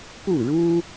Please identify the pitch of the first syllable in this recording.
falling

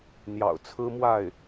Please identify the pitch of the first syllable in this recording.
low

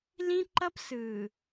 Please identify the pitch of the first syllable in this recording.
high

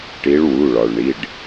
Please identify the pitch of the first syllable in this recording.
rising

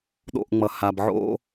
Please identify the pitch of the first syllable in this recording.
falling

